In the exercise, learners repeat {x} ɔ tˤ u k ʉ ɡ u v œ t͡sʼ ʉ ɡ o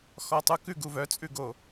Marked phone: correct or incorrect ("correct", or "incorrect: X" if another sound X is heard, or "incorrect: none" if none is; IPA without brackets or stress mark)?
correct